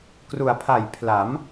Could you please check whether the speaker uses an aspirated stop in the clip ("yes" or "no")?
yes